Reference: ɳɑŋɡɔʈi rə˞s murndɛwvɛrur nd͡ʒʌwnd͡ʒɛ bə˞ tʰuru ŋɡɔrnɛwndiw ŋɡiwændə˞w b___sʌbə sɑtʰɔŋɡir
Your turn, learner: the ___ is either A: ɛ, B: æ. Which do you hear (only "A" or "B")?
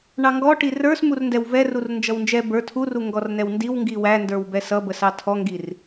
A